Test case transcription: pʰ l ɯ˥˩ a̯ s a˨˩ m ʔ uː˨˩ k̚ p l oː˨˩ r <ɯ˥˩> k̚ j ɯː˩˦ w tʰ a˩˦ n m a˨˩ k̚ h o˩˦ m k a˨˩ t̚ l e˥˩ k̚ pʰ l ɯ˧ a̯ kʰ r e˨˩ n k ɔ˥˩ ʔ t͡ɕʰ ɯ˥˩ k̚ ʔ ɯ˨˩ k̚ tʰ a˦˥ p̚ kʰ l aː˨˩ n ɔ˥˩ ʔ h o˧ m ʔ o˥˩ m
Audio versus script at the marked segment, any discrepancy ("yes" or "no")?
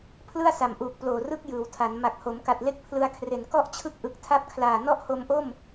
no